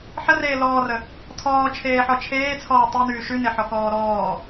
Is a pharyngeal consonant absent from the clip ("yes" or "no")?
no